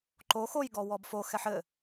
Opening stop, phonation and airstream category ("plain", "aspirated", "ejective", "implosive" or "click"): click